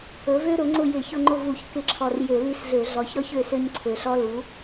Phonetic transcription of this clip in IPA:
ɵ˩˥ v ø˥ ɾ ʊ˩˥ ŋ͡ǀ ʊ˦˨ j ɪ˧˩˧ ç ʊ˦˨ ŋ͡ǃ ʊ˦˨ v u˧˩˧ ç k ɪ˧˩˧ ǁʰ ɔ˨˩ r j ø˧˩˧ l i˦˨ s ɮ ø˧˩˧ ɮ ɔ˨˩ ç ɾ ɔ˥ ç ø˦˨ s ø˥ ɲ ǀʰ ø˨˩ ɬ ɔ˥ l u˩˥

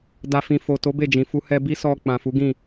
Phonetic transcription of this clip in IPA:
d a˨ f ĩ˨ f o˨ t o˨˦ b e˦˨ d͡ʒ ĩ˨ f u˧ h ɛ˧ b i˦ s ɔ˧ k͡p ã˨ f u˨˦ ɡ ĩ˦˨

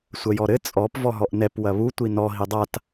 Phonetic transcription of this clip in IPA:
sʷ ɐ j ɔ ɾ ɘ t͡sʼ ɔ p v ɔ ɦ ɔ ʔ n ɛ p w ɐ β u tʷ i n ɔ ɦ i dˤ a t

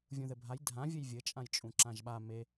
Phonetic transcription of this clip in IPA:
vʲ ũ ð ɘ bʱ a j dʱ ã vʲ ɘ j vʲ ɘ t͡ʃʼ ã j t͡ʃʼ ũ ǁ ã ʒ ɓ a m e

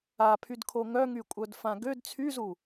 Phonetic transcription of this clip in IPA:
a pʰ y d kʰ o ŋ œ ŋ y kʷʼ œ d f ã ɡ ø d t͡sʰ y z u

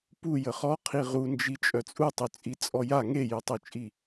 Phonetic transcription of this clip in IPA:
p u j ə χ ɔ qʰ i ʁ u n d͡ʒ i t͡ʃʼ œ t͡sʼ u tˤ y t͡sʼ i t͡sʼ ɔ j a ŋ e j y tˤ u t͡ʃʼ i

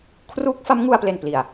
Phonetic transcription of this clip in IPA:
kʰ r uː˦˥ k̚ f a˦˥ m ŋ u˧ a̯ p l e˨˩ n p l i˨˩ a̯

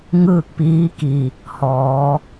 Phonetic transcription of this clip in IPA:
ŋ ɯː˥˨ k̚ p iː˧˥ k i˩ | h ɔː˩˧

